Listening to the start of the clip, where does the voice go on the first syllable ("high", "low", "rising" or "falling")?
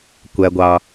low